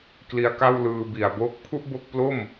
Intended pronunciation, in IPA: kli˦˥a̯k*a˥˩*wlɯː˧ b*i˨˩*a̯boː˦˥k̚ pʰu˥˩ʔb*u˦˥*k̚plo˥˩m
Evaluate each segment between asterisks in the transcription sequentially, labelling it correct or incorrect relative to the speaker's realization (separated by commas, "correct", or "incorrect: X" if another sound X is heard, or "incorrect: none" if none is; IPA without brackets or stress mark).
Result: correct, correct, incorrect: o˦˥